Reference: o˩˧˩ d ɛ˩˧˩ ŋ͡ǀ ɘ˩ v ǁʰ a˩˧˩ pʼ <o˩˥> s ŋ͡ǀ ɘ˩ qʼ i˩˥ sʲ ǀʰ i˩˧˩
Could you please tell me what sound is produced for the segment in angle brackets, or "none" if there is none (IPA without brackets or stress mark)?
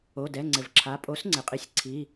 o˩˥